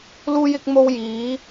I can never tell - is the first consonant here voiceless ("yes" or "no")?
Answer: no